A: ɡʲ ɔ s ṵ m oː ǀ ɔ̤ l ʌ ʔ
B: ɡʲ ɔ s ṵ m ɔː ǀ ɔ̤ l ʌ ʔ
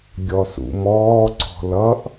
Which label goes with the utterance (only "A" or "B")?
B